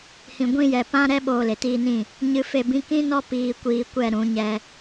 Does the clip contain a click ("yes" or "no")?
no